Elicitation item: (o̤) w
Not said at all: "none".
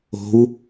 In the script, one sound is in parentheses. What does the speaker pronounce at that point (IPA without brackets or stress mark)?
o̤